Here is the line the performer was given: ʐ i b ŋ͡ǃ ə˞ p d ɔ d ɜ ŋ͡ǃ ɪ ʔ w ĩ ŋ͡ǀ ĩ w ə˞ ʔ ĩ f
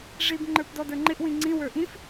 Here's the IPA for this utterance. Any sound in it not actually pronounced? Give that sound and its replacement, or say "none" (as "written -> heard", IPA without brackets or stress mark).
ɜ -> ə˞